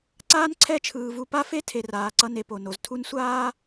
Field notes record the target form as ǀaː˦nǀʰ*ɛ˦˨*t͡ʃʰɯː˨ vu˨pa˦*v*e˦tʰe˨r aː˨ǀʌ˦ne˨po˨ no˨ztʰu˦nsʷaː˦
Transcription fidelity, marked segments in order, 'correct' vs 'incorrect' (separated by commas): correct, incorrect